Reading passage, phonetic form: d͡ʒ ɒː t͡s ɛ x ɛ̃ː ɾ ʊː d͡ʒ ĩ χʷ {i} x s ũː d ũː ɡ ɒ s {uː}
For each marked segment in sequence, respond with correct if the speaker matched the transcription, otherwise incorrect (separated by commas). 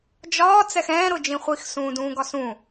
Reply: correct, incorrect